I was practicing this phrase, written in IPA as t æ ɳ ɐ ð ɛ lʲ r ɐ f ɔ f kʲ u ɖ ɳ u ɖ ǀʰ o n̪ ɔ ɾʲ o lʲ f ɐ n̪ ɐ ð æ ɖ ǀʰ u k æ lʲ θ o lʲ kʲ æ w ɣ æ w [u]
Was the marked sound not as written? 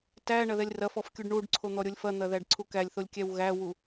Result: no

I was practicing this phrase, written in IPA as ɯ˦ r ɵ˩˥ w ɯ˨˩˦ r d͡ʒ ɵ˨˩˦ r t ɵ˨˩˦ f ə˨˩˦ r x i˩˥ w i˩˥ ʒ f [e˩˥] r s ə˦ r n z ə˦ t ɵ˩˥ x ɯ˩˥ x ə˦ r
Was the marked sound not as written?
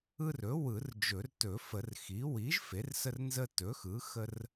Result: no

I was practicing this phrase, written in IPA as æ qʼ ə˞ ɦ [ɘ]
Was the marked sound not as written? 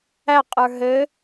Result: no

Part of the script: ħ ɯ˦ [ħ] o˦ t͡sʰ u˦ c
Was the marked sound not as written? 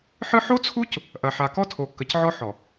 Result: no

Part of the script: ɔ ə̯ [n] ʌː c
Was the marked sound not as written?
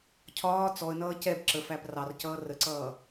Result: no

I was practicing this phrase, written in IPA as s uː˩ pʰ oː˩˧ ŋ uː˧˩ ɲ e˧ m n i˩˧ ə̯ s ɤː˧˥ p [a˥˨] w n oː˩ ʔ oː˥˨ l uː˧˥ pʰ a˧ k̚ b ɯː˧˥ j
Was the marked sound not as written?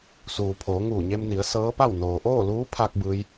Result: no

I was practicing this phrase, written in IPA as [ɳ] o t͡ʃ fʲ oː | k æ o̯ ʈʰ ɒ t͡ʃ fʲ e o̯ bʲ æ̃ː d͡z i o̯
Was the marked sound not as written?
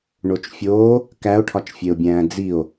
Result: no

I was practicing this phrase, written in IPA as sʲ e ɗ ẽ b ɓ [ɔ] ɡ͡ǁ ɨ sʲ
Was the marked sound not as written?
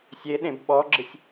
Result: no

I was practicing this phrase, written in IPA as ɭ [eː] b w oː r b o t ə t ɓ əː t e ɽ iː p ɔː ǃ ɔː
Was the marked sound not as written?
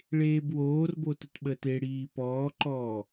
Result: no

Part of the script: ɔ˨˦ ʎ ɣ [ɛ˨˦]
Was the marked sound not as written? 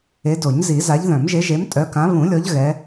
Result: no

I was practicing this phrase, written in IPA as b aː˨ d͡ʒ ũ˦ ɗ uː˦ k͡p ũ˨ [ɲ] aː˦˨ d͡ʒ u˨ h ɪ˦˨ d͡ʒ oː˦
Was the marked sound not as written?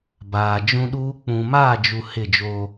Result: yes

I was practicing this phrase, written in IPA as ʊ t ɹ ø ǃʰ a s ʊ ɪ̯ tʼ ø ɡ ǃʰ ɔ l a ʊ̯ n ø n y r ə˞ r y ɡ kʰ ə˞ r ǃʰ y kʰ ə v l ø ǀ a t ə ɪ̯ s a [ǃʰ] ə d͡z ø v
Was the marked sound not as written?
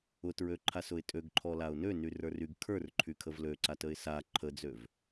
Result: no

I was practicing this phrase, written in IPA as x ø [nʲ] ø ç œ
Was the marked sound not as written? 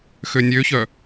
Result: no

